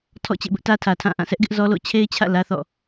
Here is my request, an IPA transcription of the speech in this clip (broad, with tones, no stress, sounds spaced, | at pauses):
tʰ ɔ̰˦˨ t͡ɕ ḛ˦˨ b ʊ˦ ʔ t ä˦ tʰ ä˨ tʰ ã˦˨ ʔ ã˦˨ s ɛ˦ ʔ ɡ ɪ˦ ʔ z ɔ˦ l o̰˦˨ t͡ɕʰ e˦ ɪ̯ t͡ɕʰ ä̰˦˨ l ä˦ θ ɔ̰˦˨